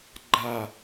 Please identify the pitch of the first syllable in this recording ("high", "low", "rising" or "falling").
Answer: falling